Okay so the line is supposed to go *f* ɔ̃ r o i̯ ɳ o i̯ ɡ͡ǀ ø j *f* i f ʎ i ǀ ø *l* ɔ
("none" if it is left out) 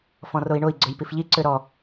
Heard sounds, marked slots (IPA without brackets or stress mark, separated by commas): f, p, ɾ